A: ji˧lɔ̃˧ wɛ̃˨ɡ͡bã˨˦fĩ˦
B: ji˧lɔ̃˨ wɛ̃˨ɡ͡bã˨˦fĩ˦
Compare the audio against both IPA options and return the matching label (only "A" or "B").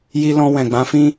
A